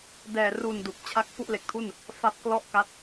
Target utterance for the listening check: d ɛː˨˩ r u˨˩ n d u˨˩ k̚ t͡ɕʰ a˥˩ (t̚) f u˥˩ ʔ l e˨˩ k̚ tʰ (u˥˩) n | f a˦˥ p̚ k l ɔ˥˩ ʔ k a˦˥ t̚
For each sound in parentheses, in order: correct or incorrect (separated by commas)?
incorrect, correct